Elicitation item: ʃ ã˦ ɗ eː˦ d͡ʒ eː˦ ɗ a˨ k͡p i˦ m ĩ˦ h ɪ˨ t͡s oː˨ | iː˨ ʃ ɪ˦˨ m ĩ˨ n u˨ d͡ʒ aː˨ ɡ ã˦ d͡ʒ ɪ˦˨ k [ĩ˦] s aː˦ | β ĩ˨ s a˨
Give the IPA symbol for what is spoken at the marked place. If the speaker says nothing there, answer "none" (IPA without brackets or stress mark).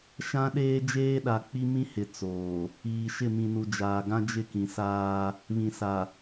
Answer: ĩ˨